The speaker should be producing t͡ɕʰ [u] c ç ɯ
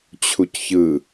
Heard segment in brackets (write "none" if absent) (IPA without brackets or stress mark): u